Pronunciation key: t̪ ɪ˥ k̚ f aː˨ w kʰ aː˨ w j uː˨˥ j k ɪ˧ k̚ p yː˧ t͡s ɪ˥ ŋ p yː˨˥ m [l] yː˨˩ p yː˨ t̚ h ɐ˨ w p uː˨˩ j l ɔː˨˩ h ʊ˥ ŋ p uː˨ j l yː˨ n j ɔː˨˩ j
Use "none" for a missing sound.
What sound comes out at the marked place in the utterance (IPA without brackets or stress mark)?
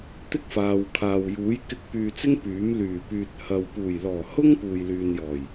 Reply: l